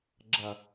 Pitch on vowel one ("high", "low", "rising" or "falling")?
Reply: low